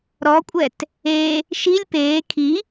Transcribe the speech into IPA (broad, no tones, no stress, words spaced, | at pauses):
ɾɔkʷʼɛt | e | ʃilʲ peː kʰi